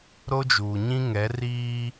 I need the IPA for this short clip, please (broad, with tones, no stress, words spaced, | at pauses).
ɾo˦ d͡ʒuː˨ ɲĩ˦ŋɛ˨˦ riː˦